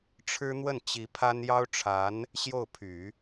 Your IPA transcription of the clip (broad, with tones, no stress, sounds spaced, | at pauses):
ʈ͡ʂʰ ɻ̩˥ n̪ w ə˥˩ n t͡ɕ i˧˥ pʰ a˥ n j ɑ˥ ʊ̯ ʈ͡ʂʰ a˧˥ n | ɕ j o˥˩ ʊ̯ pʰ y˨˩˦